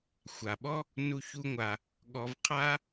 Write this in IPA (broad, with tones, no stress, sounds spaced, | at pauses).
xʷ a˩ ɓ ɔ˥ | n u˧ ç u˧ ŋʷ a˩ | ɠ ɔ˧ v qʰ a˥